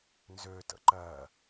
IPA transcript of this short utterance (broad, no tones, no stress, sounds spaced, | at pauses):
n z ø t ə̰ ǃ ɜ